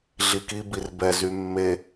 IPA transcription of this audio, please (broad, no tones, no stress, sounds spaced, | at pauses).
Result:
ɮ i k i b i r b ɛ z y mː e